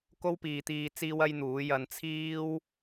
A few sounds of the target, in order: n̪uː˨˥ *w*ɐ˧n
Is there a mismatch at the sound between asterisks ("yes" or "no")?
yes